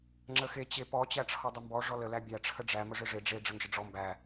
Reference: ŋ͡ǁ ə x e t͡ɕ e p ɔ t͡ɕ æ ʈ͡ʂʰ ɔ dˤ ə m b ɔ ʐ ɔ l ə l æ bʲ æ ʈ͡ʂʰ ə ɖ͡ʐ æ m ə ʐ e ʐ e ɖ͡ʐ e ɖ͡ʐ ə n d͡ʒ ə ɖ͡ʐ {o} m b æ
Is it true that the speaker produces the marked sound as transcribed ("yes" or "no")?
no